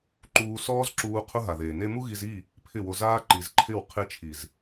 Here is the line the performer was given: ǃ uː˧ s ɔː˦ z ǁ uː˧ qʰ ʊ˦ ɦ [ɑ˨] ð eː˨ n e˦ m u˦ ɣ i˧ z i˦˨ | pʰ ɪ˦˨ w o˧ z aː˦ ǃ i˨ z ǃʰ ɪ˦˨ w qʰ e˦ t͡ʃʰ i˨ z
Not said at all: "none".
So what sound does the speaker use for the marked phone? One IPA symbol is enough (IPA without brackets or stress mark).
a˨